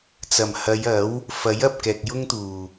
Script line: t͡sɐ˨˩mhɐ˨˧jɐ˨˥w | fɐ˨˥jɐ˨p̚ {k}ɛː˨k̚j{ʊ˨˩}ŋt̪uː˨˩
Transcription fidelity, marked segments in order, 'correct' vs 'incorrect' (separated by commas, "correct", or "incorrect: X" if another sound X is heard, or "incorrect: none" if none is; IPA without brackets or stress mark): correct, incorrect: ʊ˥